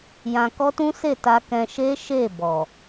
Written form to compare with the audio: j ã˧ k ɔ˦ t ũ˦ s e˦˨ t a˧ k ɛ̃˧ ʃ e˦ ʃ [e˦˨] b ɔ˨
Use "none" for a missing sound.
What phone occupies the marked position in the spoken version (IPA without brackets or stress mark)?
e˦˨